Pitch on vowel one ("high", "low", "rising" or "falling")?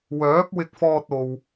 rising